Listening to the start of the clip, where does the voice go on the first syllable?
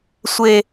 high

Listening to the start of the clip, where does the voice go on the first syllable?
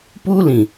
high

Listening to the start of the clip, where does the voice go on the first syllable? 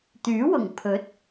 rising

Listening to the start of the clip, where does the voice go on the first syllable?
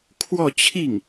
falling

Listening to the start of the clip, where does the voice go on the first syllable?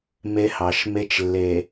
high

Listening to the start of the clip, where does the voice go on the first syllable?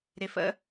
low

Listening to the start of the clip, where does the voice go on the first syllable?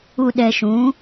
low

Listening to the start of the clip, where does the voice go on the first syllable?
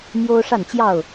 high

